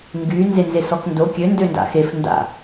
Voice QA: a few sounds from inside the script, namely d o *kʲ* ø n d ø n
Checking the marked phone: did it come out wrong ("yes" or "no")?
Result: no